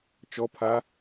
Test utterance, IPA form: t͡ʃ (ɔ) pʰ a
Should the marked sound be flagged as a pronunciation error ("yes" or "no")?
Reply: no